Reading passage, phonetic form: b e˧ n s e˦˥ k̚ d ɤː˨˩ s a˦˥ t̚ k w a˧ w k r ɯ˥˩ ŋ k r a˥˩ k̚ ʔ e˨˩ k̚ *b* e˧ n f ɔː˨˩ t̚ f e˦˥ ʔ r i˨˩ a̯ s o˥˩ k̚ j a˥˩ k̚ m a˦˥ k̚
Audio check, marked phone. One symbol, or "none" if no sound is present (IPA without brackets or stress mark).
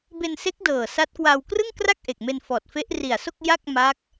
m